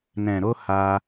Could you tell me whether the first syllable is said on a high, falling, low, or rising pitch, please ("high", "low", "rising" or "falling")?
low